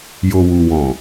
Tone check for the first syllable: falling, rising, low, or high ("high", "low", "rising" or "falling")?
low